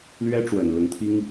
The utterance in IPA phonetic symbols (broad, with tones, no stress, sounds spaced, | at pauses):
l ɥ ɛ˥ ʈ͡ʂ w ə˨˩ n l ʊ˧˥ ŋ t̪ʰ i˥ ŋ